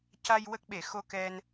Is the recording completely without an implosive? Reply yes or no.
no